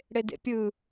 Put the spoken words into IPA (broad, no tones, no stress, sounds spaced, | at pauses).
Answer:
ɽ e d ḛ pʲ ɯ